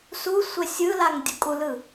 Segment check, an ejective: present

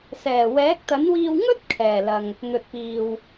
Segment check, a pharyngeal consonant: absent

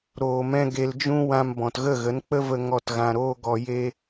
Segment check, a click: absent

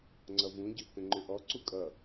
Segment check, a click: present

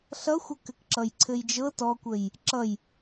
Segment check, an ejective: absent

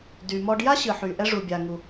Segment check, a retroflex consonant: present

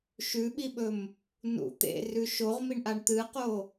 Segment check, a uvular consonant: present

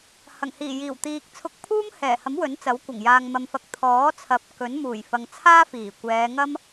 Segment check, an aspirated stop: present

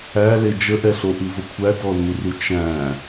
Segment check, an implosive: absent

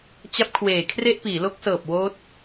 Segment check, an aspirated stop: present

